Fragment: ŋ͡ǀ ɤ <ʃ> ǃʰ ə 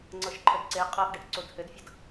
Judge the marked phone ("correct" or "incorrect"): correct